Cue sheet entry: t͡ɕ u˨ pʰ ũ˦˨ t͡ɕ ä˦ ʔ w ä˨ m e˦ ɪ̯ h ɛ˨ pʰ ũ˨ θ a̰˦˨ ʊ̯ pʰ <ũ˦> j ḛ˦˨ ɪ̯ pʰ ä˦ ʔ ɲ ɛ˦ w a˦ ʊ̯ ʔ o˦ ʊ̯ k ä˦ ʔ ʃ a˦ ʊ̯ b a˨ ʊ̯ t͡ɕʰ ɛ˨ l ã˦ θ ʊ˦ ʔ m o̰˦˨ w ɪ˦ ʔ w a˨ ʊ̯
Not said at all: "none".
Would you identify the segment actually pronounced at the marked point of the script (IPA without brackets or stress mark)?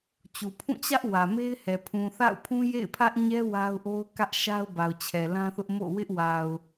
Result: ũ˦